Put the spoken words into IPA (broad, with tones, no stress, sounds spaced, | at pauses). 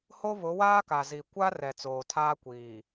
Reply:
h o˦ β ʊ˨˦ w aː˦ k a˨ z i˨ kʷ a˦ r ɛ˨ t͡s oː˨ tʰ aː˦ kʷ iː˨